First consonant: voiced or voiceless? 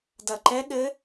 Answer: voiced